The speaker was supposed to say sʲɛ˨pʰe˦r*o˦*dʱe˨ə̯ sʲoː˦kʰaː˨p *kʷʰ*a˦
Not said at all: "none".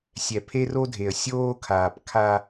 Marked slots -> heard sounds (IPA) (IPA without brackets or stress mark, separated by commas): o˦, kʰ